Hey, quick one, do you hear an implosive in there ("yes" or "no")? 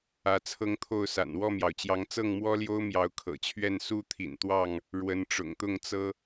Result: no